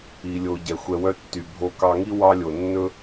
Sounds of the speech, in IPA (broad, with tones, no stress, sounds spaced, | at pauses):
i˩ lʲ o˩ ɟ ɛ˩ xʷ ɛ˨ w œ˦ tː y˩ bʱ o˨ k ɑ˨ ŋ i˦ w ɑ˦ lʲ o˩ nː ɵ˥